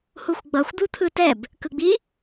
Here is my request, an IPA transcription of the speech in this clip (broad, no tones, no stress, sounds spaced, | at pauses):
h u xʷ ɡ͡b ʌ xʷ d̪ u t̪ʰ ɯ t ɛ b | k ɯ ɡ͡b i